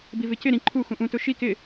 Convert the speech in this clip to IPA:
b i v ɪ c ɪ ɾ ĩ ǃʰ u x ũ ʔ ũ t ʊ ʃ i k ɪ

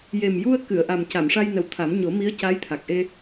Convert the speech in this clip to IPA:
j e˨˩ m j u˧ ə̯ k ɨ˨˩˨ ə̯ ʔ a˨˩ m c a˨˩˨ m ʂ a˧ j n ə˨˩ w t̪ʰ a˨˩˦ m ɲ o˨˩˦ m i˧˥ ə̯ c a˧˥ j t̪ʰ a˨˩ k̚ ʔ e˧

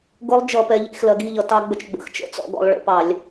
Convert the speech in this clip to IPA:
ɡ ʊ˦˥ lˠ d͡ʒ ʌ˧˩˧ p ɛ˩˧ ʎ ḭ˧˩˧ x l ɜ˩˧ ɡ i˥˧ ʎ ʌ˩˧ t ɑ˧ ɡ͡b ə˧ t͡ʃ ɡ͡b ə̰˧˩˧ x t͡ʃ ə̰˦˥ t͡s ɔ̰˥˧ ɡ ɔ̰˧ lˠ ɭ ə̰˧˩˧ p ɑ˧˩˧ lʲ

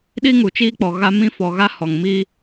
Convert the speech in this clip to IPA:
ɗ i˦ ŋ u˨ t͡ʃ iː˦ k͡p ɔ˨ ɣ a˦ m ĩ˦ f ɔ˨ ɣ a˦ h ɔ˨ ŋ m i˦

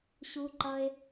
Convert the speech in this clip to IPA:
ɕ u˧ ǃ ʌ˧ e̯

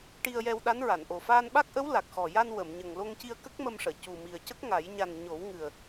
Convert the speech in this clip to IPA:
ʈ i˧ ə̯ j ɛ˧ w ɗ a˧˥ n ɹ a˨˩˨ n ʔ o˨˩ f aː˧ n ɓ a˦˥ k̚ ʔ ə˧˥ w l a˨˩ k̚ x ɔ˨˩ j a˧ n w ə˨˩˨ m ɲ ə˨˩ ŋ l o˧ ŋ c i˧ ə̯ k ə˦˥ k̚ m ə˧ m ʂ əː˨˩˨ c u˨˩ m i˨˩ ə̯ c ə˦˥ k̚ ŋ a˨˩˦ j ɲ a˨˩ n ɲ o˨˩˦ w ŋ ɨ˨˩ ə̯

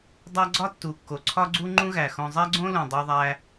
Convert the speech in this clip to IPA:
dˤ æ˦ ɡ͡ǀ ɒ˥ tː u˩ kː o˩ ǀʰ ɒ˦ ɡ͡ǀ u˦ ŋ͡ǃ ũ˦ ɣ æ˩ x õ˨ zˤ æ˥ ɡ͡ǀ õ˥ l ũ˩ dˤ o˨ ðˤ æ˨

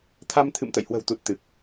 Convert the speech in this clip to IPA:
t̪ʰ a˧ m t̪ʰ ɨ̰˧˨ m t̪ ə̰˧˨ j h w ə̤˨˩ w t̪ u˨˩ t̚ t̪ ɨ˨˩ k̚

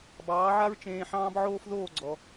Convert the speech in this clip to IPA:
b ɑː˩˥ ʕ a˥ ɹ t͡ʃ ẽː˧ ħ ɑ̃ː˥ b ʕ oː˥ f ð oː˥˩ ɡ͡ǀ ɔ˩

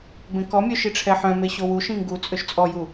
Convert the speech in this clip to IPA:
b ẽ k ɔ mʲ œ ʃ i ʈ͡ʂʰ ɛ ħ œ̃ m e ɕ o w u ʃ ĩ ŋ ɡ u t͡sʼ ø ʃ t͡sʼ ɔ j u

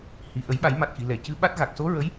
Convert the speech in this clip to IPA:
h i˨˩ ʔ ə˨˩˦ j ɓ a˨˩˦ j m a˨˩ t̚ x i˨˩˨ l ɛ˨˩˨ c ɨ˧˥ ɓ a˦˥ t̚ ɣ a˨˩ k̚ s o˧˥ ɹ ə˧˥ j

